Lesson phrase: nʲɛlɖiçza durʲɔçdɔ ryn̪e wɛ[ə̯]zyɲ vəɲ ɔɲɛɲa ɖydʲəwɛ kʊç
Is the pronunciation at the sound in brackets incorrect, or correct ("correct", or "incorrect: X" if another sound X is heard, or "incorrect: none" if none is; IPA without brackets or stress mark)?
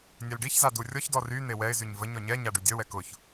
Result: incorrect: ɪ̯